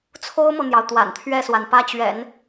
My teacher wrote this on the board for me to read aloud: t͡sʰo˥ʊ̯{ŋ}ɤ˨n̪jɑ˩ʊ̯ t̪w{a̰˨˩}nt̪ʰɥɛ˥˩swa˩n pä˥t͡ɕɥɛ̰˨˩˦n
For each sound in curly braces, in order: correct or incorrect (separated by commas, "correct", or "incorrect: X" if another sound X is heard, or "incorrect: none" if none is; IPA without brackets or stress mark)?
incorrect: m, correct